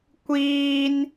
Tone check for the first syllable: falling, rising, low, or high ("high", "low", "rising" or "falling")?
high